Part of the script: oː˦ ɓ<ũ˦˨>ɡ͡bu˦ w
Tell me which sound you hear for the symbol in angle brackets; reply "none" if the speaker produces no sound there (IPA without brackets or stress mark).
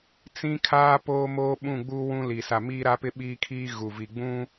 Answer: ũ˦˨